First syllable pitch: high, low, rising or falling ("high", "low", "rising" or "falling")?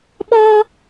high